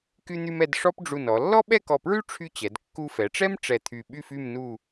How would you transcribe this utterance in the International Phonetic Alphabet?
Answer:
k y˧ n̪ y˧ m ɛ˧ d ʂ ɔ˥ p ɖ͡ʐ u˧˩ n ɔ˩˧ lː ɔ˥ ɓ ɛ˥˧ k ɔ˧˩ p ɹ y˥ ʈ͡ʂʰ y˥ t͡ɕ ɛ˩˧ d kː u˧ f ɛ˩˧ ʈ͡ʂ ɛ˥ m ʈ͡ʂ ɛ˧˩ t̪ʰ y˧˩ ɓ y˥˧ f y˥˧ m n u˥˧

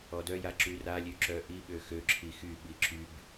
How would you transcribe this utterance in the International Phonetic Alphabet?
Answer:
ɔ d œ j a ǁ y r a lʲ ø ǁ œ ʔ i ɓ ø x ø ǁʰ i x y ɓ i ǁ y b

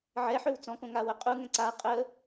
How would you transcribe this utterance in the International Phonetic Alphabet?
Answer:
ʕ ɛ ħ ø w t͡s ɔ̃ k õ ŋ a w ə qʼ u ŋ ɛ̃ ǀ a qʼ ə

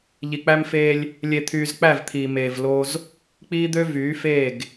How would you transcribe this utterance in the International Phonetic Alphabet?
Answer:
ʎ i˨ k͡p æ˦ m f eː˦ lʲ | lʲ e˨ t̪ʰ yː˨ z k͡p æ˦˨ v t̪ʰ iː˨ m eː˨ v l oː˦ z | k͡p iː˦ d̪ ø˦ v yː˨˦ f eː˦˨ ɡ

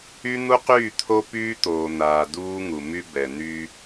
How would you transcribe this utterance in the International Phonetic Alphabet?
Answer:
y˦ n̪ u˦ q yː˦˨ t̪ʰ o˦ p yː˦ t̪ oː˨ n̪ aː˨ d uː˦ ŋ u˨ m y˦ b ɛ˨ n̪ y˦

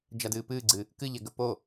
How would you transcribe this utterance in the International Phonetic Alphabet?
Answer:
d͡ʒ a d ɨː p ɨː ɡ͡ǀ ɨ | k ɨ ʎ ɛ ɡ ə p o

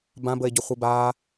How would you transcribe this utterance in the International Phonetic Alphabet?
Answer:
b ã b ə e̯ ɟ ʊ χʷ i b aː

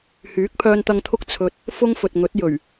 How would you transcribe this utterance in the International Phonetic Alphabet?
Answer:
h yː˨˥ k̚ pʰ œː˧ n t̪ ɐ˧ ŋ t̪ʰ ʊ˥ k̚ t͡sʰ ɵ˧ t̚ | f ʊ˥ ŋ f ɵ˨ t̚ ŋ ɵ˨˥ t̚ j ɵ˨˩ ɥ

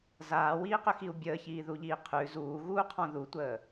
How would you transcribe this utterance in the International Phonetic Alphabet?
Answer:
z aː w iː q ʏ x i u̯ bʲ əː ç iː ð u ʎ iː qʰ ʉ z uː ɣ uː qʰ ɔ̃ ð u tʷ əː

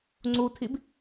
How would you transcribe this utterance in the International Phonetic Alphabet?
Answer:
ŋ͡ǀ u tʰ i b

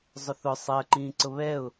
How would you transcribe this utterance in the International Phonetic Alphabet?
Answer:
zˤ ʊ θ ʊ sˤ ɜ ǃ ĩː ǀ ʊ β ɛ ʊ̯

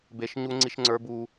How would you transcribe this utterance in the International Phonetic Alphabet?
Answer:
b e˦ ʃ ɲ u˦ ŋ͡ǀ i˦ ʃ ŋ͡ǀ ə˞˦ b u˦

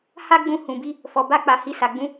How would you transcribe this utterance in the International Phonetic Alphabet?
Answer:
h a˦ ɡ͡b ũ˧ h ũ˨ b i˧ | f ɔ˨ b a˧ k͡p a˨ h i˨ s a˨ ɡ͡b ũ˧

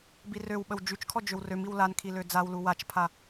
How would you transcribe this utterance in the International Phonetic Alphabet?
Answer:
b i r ø w ɓ ə w d͡ʒ y t͡ʃ kʰ ɔ d͡ʒ ø w r ø m i w l a n kʰ i l ø d͡z a w l u w a t͡ʃ pʰ a

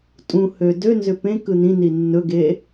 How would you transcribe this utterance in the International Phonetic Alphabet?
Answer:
tʼ ũ h ø d ø n z ʏ p ẽ k ɯ n ĩ n i nː ɵ ɡ e

